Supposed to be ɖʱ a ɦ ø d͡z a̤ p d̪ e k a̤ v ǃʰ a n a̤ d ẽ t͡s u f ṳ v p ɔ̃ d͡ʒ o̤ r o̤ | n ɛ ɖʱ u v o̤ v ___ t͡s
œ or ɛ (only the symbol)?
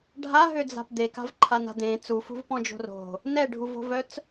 œ